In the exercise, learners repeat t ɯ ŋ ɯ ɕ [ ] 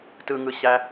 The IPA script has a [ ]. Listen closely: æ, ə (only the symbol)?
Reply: æ